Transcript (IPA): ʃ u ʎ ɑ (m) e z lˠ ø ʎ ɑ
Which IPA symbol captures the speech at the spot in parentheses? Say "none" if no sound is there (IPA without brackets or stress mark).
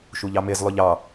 m